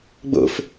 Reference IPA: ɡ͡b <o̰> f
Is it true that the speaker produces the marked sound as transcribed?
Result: yes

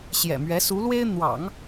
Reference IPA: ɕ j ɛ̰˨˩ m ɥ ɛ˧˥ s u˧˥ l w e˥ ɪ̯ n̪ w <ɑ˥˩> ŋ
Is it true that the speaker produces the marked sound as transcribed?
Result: no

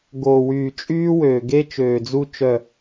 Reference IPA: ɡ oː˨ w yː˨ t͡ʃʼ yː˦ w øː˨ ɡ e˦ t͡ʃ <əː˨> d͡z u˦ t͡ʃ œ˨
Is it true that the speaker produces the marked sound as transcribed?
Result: no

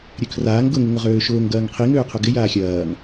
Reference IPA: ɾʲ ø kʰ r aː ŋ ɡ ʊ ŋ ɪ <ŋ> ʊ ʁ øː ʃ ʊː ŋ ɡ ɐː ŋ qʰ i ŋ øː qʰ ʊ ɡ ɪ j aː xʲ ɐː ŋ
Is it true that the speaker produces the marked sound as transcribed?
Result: yes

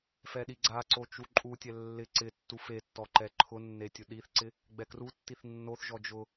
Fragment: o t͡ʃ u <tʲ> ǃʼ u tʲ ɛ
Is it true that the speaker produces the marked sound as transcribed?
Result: no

